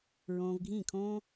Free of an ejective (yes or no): yes